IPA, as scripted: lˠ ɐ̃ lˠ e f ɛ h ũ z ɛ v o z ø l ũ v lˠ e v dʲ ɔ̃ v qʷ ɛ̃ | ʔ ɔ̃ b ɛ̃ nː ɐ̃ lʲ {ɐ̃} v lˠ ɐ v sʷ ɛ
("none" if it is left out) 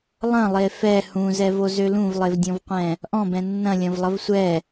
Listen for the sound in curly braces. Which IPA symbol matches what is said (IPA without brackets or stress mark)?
ɐ̃